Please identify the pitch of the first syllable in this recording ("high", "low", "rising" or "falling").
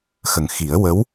low